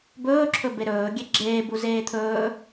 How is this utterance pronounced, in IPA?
b ɵː ǁʰ ɵ b e ɾ ɵː ɡʲ e ɡ͡ǁ eː b u z eː t̪ʰ ɵː

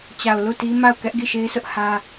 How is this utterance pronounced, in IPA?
t͡ɕ a˨ ʊ̯ l u˦˨ t i˦ m a˦˨ ʊ̯ k ɛ˦ ʔ ɡ i˦˨ ʃ e˦ ɪ̯ s ʊ˦ ʔ h ä˦

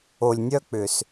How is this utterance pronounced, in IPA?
o˨ lʲ nʲ œ˦ k͡p ʏ˨ s

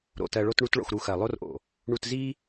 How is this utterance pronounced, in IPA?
ɾ o̰˨ t ɜ˧ ɭ o˦ t ɳ u˦ t ɭ o̰˧ x ɾ u˧ x ɜ˨ lˠ o˦ r ʔ o̰˨ | ɳ u˧ t z i˦

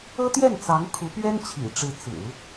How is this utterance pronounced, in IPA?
ɤ˥ t̪ j ɛ˥˩ n t͡s ɑ˧˥ ŋ kʰ u˧˥ p ɥ ɛ˥ n t͡ɕʰ ḭ˨˩ ʈ͡ʂ ɻ̩˧˥ t͡s ɹ̩˨˩˦

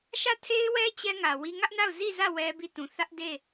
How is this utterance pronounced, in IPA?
ʃ ä˦˨ tʰ e˦ ɪ̯ w ɛ˦ t͡ɕ ɛ˦ ŋ ä˨ w i˦ ŋ ä˦ ʔ n a˦˨ ʊ̯ z i˦˨ z ä˦˨ w ɛ˦ b i˦˨ t ũ˨ θ ä˦ ʔ d e˦˨

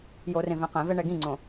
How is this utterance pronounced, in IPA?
j o r ẽ v ɛ̃ q ɛ̃ v ɛ ɳ ɛ ɡ ĩ ŋ͡ǀ õ

